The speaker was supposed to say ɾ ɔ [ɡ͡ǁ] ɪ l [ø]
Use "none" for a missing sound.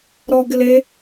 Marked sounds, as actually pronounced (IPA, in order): ɡ, e

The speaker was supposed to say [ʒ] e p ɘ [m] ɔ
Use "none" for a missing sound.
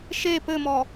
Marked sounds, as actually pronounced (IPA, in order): ʃ, m

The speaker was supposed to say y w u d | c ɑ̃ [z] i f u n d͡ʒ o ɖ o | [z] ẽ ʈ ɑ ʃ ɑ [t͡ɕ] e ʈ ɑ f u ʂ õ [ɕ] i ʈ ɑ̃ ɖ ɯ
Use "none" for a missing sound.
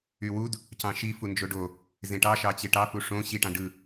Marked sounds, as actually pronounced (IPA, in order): ʃ, z, t͡ɕ, ɕ

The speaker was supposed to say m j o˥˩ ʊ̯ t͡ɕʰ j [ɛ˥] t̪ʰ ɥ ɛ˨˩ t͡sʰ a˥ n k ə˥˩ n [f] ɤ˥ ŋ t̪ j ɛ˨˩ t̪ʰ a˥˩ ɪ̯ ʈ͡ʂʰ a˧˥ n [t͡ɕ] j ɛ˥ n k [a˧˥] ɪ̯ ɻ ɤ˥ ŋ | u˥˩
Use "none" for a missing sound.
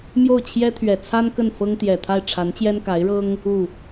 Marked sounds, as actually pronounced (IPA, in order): ɛ˥, f, t͡ɕ, a˧˥

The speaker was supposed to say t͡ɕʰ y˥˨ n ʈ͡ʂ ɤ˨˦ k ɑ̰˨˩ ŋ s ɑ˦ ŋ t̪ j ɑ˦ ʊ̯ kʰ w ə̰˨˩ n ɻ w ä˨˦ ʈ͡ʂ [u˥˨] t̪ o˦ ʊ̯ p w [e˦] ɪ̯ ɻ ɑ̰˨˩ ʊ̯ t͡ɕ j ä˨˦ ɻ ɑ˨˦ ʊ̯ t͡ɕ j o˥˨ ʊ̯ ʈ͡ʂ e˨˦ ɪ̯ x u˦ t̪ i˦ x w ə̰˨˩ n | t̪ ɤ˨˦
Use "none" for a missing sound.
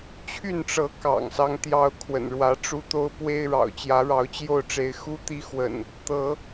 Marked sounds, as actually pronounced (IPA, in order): u˦, e˦

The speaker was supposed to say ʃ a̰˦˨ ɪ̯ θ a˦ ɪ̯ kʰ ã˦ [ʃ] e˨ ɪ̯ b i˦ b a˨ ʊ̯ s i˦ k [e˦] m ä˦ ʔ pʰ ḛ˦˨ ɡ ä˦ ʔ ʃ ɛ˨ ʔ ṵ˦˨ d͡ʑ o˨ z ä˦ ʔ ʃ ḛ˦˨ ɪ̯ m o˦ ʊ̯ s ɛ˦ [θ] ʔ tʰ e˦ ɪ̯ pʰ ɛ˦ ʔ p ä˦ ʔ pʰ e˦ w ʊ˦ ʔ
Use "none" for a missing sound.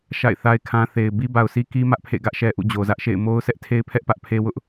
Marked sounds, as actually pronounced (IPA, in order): θ, i˦, none

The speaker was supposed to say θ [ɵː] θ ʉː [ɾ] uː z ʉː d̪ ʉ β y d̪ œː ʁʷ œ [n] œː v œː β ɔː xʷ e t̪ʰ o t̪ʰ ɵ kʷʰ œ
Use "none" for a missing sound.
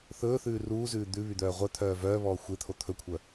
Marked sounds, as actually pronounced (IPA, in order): ɵː, r, t̪ʰ

